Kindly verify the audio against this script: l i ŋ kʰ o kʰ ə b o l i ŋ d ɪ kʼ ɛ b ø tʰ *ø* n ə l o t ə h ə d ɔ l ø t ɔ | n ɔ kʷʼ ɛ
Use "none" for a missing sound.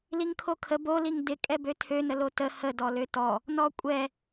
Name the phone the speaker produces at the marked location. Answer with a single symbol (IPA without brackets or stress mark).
ø